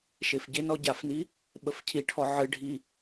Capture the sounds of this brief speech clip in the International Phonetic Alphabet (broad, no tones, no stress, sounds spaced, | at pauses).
ʃ e f ɟ ɪ n ɔ ɟ a f n i | ɓ ə f cʰ i ʈʰ ɔ ʕ ɨ ɖʱ i